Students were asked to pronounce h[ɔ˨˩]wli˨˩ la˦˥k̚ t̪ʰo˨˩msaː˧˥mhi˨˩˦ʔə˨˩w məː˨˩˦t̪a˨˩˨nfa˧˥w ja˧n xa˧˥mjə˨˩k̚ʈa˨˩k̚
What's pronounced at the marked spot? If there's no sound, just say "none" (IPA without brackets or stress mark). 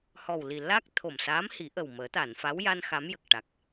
ɔ˨˩